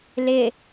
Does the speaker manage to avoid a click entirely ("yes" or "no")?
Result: yes